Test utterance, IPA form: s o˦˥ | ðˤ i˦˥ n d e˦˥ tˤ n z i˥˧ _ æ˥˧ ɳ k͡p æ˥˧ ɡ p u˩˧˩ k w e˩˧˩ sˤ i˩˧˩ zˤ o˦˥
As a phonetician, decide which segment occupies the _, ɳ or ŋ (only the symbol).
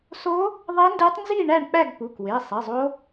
ɳ